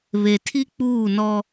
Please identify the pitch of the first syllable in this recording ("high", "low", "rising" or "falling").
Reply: low